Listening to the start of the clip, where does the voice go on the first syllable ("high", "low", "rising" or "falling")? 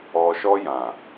low